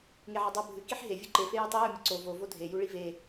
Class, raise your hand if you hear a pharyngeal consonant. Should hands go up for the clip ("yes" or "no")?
yes